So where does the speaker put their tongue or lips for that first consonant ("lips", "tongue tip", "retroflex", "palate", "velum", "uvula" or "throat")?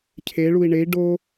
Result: palate